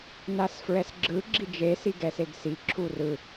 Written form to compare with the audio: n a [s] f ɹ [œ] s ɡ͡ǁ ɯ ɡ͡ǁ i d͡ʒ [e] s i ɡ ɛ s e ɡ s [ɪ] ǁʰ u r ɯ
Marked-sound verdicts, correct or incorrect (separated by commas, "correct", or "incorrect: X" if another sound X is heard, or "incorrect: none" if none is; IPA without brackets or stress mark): correct, incorrect: ɛ, correct, incorrect: i